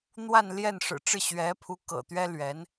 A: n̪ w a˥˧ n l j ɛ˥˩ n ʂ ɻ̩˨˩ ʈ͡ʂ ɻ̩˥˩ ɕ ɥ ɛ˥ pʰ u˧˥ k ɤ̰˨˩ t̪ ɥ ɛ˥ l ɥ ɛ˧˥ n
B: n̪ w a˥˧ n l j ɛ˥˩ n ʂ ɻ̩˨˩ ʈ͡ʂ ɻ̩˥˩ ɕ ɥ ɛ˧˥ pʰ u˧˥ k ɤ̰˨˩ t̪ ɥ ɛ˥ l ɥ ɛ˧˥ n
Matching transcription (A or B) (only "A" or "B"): B